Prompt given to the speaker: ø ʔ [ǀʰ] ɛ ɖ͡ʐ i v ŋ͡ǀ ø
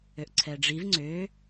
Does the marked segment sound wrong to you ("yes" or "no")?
no